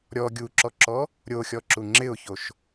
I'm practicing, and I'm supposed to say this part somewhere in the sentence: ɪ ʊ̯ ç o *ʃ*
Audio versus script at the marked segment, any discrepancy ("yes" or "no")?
no